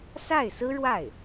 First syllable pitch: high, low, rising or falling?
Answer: falling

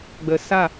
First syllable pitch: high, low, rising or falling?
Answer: low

